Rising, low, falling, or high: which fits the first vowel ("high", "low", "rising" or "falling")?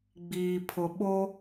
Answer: low